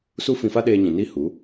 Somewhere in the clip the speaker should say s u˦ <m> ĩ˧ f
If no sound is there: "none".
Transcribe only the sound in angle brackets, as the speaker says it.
f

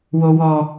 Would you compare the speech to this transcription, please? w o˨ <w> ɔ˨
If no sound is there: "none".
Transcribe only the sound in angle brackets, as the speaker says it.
w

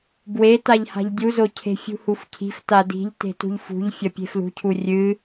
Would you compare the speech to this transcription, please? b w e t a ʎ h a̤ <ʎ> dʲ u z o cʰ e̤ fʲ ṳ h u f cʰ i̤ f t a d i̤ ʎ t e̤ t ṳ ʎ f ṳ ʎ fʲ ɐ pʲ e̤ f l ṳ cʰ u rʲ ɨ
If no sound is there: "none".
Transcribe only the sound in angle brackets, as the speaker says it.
ʎ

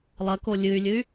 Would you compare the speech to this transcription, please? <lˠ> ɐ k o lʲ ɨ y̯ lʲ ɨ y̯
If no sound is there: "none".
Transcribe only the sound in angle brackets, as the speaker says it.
lˠ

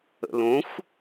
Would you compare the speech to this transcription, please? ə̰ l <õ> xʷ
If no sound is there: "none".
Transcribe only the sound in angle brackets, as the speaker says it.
õ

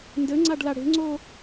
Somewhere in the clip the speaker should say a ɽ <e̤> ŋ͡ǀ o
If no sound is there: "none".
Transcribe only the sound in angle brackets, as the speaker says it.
e̤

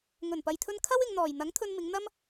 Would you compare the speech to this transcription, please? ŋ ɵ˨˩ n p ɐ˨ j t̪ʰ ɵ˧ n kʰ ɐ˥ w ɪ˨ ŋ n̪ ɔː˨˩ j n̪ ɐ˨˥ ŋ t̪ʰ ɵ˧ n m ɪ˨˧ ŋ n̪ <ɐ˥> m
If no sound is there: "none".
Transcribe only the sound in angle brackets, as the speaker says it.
ɐ˥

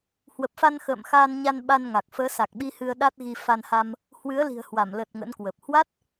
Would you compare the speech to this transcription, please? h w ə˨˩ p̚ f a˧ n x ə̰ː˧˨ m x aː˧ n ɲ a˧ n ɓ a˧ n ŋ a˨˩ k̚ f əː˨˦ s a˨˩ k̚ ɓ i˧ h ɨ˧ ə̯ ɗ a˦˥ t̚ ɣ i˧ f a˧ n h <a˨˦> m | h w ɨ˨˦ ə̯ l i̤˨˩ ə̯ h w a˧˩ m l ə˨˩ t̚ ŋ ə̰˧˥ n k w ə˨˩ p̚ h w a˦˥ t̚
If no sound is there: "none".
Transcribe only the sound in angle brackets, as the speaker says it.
a˧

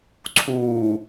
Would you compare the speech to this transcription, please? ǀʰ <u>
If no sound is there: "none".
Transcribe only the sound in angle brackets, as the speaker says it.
uː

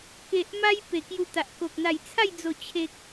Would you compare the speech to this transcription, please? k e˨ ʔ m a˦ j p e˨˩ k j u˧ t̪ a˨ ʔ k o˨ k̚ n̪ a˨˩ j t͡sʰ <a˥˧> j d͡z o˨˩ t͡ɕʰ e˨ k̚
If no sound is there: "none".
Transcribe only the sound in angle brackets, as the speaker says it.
a˥˧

